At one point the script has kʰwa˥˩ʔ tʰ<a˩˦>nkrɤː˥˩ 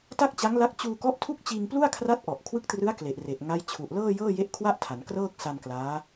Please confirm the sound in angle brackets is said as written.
yes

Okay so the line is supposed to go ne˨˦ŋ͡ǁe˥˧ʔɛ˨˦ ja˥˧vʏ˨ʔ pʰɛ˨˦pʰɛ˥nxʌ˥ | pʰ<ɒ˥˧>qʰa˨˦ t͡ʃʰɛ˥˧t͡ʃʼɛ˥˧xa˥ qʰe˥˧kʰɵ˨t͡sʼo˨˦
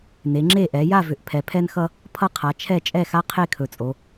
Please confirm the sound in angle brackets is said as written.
no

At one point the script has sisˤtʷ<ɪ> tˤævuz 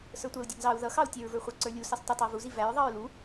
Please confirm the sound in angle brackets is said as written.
yes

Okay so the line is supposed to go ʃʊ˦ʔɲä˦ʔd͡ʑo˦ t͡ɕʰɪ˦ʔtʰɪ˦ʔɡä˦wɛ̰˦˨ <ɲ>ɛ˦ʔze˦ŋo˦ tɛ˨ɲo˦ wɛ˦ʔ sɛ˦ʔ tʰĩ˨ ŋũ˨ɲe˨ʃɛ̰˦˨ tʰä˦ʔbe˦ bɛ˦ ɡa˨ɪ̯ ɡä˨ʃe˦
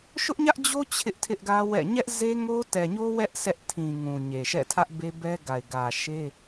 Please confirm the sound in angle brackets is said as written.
yes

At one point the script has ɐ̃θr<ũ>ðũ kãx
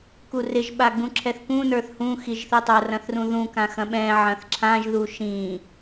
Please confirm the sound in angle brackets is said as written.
yes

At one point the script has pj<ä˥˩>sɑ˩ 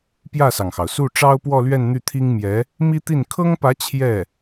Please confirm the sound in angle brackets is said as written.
yes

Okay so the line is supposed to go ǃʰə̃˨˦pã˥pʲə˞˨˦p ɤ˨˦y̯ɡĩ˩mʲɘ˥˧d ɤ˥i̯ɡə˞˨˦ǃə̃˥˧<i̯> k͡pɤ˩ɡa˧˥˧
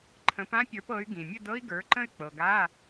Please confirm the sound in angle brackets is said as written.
no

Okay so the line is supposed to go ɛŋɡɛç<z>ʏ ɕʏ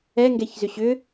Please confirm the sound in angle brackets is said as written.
yes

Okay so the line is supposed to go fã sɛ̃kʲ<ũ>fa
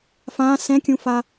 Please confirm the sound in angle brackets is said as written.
yes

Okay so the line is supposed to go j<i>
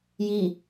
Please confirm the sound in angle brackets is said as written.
yes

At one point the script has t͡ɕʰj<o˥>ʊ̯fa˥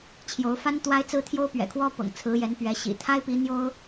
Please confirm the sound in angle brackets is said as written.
no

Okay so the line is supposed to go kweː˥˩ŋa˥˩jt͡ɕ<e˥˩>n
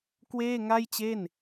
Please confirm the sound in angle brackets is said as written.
yes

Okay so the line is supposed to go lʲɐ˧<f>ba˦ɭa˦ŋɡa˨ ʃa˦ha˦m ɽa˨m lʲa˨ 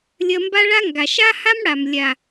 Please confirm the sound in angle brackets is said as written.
no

